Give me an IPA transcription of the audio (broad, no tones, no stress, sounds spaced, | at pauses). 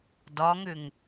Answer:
d ɒ ŋ ʏ ŋ